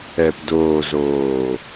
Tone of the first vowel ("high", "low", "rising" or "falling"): low